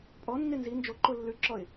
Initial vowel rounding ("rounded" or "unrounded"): rounded